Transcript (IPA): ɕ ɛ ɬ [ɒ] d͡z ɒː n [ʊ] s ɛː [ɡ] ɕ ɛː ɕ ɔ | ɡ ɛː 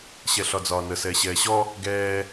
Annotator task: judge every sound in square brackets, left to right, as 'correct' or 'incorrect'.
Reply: correct, incorrect: ə, incorrect: none

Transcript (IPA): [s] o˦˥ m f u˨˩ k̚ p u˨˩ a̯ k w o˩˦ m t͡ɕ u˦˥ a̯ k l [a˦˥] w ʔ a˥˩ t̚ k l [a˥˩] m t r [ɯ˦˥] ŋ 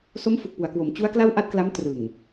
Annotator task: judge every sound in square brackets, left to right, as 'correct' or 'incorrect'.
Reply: correct, incorrect: a˥˩, incorrect: a˦˥, incorrect: ɯ˨˩

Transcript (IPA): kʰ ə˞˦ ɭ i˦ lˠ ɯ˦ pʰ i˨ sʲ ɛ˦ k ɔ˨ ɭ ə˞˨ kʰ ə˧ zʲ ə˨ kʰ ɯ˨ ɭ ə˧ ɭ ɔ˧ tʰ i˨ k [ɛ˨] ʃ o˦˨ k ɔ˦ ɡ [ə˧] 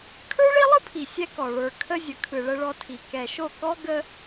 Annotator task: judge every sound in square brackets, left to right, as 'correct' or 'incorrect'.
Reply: correct, correct

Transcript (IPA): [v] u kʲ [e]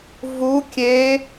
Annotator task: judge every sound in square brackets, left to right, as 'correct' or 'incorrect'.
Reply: correct, correct

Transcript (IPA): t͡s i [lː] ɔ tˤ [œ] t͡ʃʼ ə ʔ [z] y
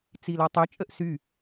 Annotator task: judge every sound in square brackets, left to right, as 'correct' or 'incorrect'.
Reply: incorrect: l, correct, incorrect: s

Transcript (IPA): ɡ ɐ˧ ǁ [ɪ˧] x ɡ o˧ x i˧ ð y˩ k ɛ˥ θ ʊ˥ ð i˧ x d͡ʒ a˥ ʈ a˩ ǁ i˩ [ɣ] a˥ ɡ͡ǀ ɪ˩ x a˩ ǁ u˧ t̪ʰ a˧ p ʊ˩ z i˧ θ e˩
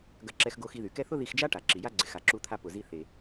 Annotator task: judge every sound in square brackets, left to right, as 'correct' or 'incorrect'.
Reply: incorrect: ɛ˧, incorrect: j

